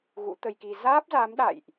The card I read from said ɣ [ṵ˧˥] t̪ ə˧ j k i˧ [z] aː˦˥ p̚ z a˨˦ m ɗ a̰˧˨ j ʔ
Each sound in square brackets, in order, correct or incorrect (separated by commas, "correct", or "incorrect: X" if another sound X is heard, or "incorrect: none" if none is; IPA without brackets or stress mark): correct, correct